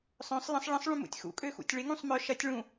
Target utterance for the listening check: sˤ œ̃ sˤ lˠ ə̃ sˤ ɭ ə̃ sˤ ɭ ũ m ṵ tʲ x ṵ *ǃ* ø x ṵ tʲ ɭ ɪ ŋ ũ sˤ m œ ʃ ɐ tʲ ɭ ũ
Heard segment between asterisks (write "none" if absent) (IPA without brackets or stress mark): kʼ